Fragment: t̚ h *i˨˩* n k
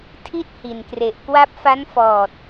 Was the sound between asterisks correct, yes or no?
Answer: yes